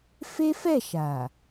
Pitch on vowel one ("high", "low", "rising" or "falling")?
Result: high